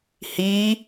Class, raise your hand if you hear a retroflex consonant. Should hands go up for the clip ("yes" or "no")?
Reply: no